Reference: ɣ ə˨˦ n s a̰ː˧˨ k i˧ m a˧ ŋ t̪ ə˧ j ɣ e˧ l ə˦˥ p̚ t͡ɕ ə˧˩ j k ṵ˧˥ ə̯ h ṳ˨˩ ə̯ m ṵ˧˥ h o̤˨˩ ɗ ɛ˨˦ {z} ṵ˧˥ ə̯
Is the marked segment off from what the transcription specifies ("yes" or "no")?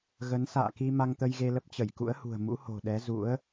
no